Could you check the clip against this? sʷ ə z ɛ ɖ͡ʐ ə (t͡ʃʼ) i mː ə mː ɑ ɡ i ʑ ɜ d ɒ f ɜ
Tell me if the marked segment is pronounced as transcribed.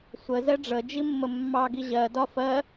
no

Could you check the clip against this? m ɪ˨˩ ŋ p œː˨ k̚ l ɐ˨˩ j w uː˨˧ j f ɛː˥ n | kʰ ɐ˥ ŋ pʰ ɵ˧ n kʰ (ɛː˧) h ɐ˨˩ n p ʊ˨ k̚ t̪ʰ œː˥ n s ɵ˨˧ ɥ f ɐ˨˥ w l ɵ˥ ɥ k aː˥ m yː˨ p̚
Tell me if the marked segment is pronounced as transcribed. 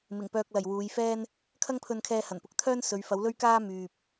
yes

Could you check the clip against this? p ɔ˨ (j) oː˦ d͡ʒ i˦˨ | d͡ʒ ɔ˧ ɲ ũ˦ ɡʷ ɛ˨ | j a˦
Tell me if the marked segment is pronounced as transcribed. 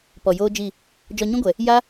yes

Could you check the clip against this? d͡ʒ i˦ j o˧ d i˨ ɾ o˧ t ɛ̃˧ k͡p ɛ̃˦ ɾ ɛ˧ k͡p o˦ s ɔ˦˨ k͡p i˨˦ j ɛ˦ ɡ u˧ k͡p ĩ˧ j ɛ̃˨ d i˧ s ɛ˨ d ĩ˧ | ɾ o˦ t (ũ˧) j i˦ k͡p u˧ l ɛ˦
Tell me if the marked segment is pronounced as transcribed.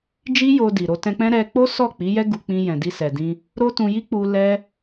yes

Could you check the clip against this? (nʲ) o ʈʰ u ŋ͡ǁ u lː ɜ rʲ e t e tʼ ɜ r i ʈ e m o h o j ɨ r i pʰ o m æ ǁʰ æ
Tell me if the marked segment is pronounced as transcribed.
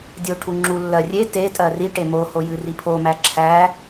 no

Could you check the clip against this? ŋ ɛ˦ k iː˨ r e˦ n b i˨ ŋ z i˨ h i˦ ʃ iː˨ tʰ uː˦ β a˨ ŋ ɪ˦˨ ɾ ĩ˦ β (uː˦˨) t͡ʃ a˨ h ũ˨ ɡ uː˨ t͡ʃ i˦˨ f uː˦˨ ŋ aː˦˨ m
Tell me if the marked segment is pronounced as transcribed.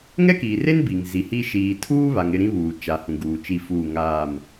no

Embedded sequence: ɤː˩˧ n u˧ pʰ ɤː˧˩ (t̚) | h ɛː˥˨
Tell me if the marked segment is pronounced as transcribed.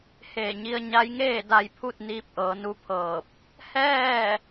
no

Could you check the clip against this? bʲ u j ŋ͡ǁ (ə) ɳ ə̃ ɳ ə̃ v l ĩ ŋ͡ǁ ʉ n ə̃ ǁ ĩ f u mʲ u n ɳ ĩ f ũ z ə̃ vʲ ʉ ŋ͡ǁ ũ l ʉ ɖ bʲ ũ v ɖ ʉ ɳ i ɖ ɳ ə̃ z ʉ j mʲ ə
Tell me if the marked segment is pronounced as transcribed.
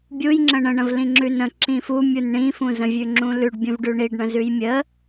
no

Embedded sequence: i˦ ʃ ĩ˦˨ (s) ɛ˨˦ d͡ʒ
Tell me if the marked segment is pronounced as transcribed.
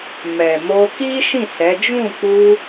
yes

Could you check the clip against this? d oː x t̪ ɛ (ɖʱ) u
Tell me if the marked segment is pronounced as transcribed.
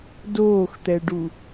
no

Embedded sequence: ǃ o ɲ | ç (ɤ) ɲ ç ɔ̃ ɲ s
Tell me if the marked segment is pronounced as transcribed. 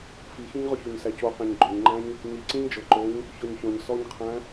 no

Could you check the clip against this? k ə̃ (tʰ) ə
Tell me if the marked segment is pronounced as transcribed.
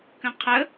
no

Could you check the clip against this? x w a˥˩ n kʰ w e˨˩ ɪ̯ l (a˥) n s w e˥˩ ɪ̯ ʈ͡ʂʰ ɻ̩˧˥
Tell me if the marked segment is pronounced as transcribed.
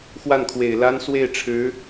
yes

